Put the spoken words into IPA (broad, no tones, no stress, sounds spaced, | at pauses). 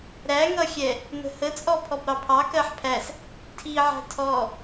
ɾ æ ŋ ʌ xʲ ɛ | n ə̤ h ə t͡sʼ ɔ pʰ ɔ b ɾ ɑ pʰ ɑ k ɜ ħ pʰ æ s | tʰ i ʕ æ̤ tʰ ɔ